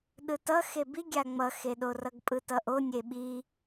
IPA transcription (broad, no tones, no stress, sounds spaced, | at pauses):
ɗ ɯ t ʌ x e b i ɡʲ a ŋ͡m ʌ x e ɗ o r ʌ ɡ pʼ ɯ t ʌ ʔ o nʲ e ɓ i